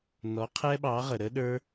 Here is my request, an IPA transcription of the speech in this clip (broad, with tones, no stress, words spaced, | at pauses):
nɔ˩˥ qʰɛ˦˥ɓɑ˩˥ʁə˩ɾə˦˥ ɗə˞˦˥